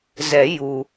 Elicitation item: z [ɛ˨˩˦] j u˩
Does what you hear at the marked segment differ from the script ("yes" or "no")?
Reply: no